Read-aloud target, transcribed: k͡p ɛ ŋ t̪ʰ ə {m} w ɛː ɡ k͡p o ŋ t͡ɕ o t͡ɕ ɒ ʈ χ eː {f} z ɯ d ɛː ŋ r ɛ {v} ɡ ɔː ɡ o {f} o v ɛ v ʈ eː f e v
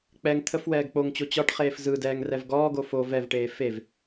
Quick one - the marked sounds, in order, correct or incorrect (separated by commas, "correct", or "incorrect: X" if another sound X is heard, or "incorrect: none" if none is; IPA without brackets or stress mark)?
incorrect: f, correct, correct, correct